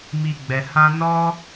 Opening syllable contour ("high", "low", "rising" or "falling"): high